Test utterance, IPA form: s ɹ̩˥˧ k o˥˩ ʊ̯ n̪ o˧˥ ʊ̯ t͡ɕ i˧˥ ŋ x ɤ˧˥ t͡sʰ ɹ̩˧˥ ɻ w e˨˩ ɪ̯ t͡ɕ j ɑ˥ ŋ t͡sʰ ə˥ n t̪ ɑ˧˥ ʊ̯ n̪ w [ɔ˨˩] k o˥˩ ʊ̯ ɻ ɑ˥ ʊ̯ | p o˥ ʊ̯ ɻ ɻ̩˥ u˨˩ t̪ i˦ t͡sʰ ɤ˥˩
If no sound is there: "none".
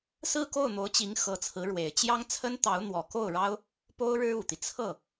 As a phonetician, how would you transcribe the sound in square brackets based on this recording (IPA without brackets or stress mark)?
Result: ɔ˨˩